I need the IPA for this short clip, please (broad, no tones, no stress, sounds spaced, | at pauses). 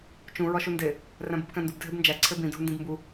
t͡ʃ ũ ɹ ɒ ʃ u n d e | r æ̃ b u b k æ̃ n d u b dʱ e b n d͡ʒ æ ǀʰ e b ĩ dʱ u n d ĩ b m b u